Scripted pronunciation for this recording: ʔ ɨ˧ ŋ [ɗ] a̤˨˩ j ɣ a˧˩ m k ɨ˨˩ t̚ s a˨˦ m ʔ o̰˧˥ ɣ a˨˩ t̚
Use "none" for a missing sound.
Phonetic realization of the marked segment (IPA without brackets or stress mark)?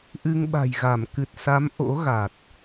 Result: ɓ